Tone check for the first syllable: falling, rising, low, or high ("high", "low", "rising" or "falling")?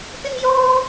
high